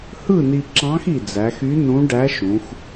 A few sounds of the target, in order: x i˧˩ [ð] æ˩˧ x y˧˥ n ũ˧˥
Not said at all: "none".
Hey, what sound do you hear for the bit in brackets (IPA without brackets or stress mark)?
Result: d͡z